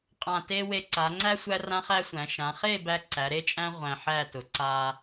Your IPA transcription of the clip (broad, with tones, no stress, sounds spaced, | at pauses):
qʼ ã˧˩ t e˥ w e˧ ǀ a˩˧ ŋ͡ǀ æ˥ sʷ æ˥ r ã˥ χ æ˥ sʷ æ̃˩˧ ʃ ã˩˧ χ e˥˧ b æ˧ ǀ æ˩˧ ɾ e˥ t͡ʃʼ æ̃˥ ʁʷ æ̃˧ ħ æ˥˧ t ʊ˩˧ ǀ a˧